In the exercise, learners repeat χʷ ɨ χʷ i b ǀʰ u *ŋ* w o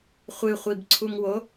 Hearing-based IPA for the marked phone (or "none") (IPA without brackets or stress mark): ŋ